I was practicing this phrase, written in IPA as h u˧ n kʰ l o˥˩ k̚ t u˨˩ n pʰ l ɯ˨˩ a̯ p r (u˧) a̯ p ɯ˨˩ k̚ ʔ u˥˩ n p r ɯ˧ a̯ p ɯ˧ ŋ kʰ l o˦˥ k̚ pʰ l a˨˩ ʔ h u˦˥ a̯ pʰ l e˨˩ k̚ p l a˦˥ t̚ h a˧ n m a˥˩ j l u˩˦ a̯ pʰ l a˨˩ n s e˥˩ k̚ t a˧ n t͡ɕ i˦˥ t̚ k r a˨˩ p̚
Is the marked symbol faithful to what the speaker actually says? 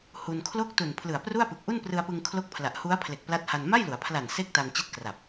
no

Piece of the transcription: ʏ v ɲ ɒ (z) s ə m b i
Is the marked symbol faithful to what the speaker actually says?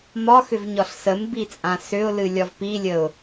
no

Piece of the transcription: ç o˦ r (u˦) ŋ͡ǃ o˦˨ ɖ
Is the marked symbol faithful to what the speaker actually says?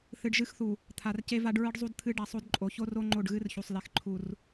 no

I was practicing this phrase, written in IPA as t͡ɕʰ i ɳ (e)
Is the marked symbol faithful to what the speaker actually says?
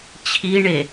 yes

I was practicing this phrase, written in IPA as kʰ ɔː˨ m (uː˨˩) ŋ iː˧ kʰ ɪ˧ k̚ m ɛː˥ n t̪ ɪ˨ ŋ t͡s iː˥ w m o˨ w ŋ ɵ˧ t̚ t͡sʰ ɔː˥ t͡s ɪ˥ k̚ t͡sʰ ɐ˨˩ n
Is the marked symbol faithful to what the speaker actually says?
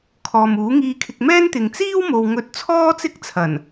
no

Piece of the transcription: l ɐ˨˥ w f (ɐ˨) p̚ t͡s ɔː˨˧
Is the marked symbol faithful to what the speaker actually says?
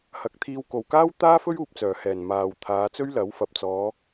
yes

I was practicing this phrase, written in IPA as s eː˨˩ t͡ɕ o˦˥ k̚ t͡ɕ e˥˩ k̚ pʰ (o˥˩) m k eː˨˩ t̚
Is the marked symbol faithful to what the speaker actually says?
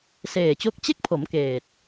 no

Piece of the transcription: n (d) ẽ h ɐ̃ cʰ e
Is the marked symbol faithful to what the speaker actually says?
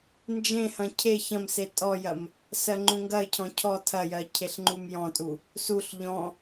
no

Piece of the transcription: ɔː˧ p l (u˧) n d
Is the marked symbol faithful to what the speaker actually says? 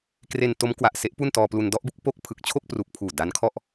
yes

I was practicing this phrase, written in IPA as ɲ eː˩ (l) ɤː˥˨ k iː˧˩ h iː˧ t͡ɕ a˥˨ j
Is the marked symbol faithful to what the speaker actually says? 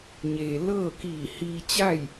yes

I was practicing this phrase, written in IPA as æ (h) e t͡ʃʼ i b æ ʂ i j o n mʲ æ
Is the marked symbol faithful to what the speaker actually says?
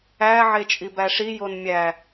no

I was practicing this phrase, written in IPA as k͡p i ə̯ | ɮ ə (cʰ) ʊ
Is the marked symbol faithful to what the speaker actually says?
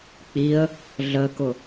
no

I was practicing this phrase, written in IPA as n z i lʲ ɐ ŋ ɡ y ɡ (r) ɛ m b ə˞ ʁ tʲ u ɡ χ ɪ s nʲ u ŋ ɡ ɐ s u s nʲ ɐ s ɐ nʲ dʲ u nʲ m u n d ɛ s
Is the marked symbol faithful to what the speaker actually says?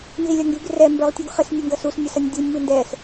yes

